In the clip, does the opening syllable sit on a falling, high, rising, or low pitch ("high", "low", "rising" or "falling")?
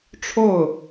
falling